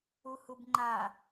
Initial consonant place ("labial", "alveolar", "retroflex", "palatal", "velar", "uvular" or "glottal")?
glottal